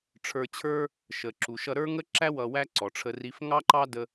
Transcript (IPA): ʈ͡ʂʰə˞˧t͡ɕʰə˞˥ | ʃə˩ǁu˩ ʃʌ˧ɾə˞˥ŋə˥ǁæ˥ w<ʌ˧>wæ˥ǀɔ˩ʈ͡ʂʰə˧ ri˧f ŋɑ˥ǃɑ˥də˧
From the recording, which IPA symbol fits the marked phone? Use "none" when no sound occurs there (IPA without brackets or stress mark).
ʌ˧